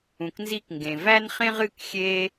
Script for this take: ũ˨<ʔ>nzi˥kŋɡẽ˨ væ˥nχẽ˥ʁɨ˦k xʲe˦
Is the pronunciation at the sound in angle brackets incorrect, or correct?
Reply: incorrect: k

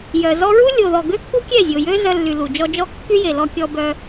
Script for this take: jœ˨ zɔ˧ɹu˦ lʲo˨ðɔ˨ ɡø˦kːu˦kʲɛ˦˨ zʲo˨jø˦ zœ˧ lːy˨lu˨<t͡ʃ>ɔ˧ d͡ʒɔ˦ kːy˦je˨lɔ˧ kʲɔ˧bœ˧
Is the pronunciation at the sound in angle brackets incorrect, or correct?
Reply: incorrect: d͡ʒ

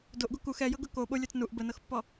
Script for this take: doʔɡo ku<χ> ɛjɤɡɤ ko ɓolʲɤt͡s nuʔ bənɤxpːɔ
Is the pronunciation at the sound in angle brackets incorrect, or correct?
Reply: incorrect: x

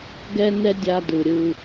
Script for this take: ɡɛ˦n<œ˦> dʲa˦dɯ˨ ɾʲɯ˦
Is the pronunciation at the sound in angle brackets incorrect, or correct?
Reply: incorrect: ɛ˦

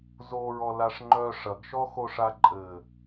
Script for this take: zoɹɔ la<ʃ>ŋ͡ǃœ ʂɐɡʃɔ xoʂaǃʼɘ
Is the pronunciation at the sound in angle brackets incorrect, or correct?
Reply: incorrect: ʂ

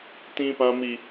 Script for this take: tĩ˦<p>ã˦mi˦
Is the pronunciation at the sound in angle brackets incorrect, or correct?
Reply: correct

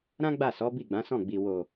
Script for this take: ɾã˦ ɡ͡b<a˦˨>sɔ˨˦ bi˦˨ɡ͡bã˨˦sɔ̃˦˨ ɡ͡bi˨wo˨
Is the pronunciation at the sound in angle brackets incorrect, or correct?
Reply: correct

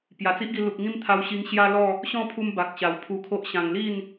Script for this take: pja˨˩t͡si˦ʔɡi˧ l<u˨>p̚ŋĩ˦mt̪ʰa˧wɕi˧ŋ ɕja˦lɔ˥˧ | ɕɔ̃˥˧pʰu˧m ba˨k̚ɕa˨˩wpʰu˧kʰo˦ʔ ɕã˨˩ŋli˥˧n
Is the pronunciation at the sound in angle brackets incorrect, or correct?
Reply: correct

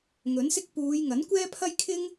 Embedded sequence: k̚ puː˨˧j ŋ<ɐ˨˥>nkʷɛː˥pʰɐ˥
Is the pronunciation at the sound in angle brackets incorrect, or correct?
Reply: correct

